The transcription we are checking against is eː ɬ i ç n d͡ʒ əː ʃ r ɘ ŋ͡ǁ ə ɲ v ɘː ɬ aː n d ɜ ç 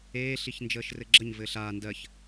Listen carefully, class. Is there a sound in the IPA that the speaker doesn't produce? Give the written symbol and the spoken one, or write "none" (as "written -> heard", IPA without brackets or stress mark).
ŋ͡ǁ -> ɡ͡ǁ